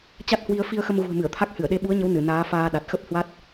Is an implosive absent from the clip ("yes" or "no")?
no